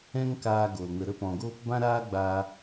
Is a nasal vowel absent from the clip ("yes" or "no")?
no